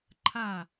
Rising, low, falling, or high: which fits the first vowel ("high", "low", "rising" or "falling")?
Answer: falling